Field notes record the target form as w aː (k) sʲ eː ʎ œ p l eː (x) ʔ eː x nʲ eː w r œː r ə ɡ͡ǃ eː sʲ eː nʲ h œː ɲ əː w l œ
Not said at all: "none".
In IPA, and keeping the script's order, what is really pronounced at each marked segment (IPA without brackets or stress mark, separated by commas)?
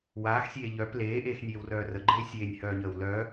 x, none